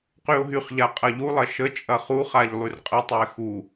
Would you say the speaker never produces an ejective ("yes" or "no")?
no